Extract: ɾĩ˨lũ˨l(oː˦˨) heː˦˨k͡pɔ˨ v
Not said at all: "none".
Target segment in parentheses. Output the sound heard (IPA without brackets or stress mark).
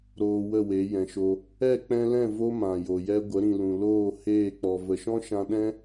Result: oː˦˨